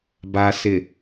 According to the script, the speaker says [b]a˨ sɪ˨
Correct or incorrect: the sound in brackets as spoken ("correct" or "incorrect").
correct